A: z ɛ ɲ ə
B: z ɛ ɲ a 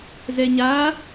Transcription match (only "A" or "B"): B